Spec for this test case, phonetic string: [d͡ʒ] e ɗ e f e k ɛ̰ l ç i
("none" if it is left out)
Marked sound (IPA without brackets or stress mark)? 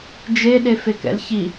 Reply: d͡ʒ